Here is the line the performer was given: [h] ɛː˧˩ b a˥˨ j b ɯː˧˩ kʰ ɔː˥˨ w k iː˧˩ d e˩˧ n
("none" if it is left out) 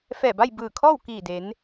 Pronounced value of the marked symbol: f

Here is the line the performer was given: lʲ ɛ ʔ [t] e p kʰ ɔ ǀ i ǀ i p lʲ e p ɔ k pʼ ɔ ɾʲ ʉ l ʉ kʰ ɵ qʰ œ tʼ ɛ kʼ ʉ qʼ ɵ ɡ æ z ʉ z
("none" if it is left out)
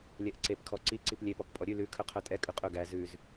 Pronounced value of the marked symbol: ǀ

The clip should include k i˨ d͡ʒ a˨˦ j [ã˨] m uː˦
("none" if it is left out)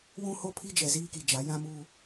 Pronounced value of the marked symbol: ã˦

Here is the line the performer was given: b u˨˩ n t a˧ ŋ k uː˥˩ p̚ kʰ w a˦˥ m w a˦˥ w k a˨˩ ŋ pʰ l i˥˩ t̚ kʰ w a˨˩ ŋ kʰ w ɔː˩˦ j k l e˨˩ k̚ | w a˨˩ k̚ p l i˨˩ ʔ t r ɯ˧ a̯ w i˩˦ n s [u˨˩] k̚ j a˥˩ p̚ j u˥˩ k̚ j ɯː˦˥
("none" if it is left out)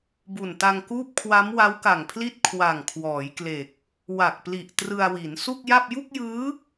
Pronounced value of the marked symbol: u˥˩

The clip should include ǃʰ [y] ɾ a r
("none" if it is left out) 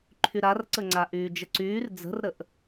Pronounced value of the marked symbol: y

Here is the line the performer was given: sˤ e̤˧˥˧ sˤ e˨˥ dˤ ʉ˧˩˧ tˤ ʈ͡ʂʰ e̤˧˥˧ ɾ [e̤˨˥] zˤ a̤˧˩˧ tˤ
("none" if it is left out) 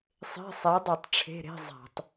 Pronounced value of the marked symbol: e̤˧˥˧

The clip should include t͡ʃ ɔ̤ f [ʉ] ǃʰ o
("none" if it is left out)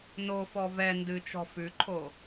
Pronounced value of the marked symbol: ʉ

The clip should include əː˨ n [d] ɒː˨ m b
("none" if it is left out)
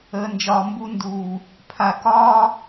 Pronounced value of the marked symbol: d͡ʒ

